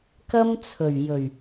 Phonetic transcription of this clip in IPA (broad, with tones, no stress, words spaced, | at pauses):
kɐ˥mt͡sʰɵ˨˩ɥ jɵ˨˩ɥ